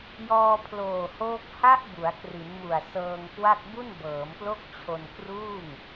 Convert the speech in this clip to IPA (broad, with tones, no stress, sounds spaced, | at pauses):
j ɔː˧ pʰ l oː˨˩ h oː˦˥ k̚ h a˦˥ ʔ b u˩˦ a̯ k r i˩˦ n m u˨˩ a̯ s ɤː˧ ŋ k w a˥˩ k̚ b u˥˩ n b ɤː˩˦ m p l o˥˩ k̚ t͡ɕʰ o˧ n k r uː˥˩ ŋ